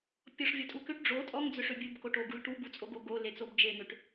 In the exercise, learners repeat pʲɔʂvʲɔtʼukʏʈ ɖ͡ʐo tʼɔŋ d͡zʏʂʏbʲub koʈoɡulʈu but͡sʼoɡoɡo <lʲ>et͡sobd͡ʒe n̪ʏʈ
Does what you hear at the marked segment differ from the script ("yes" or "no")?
yes